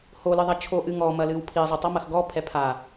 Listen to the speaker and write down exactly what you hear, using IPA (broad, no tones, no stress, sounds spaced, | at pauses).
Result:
h o l ɨ ðˤ ɐ t͡ʃʰ o ʔ ɨ ŋ ɔ m ɐ l ɨ w pʰ i zˤ i tˤ ɔ m ɐ x ɡ ɔ pʰ ɛ pʰ a